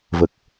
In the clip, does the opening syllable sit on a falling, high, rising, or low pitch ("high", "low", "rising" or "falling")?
low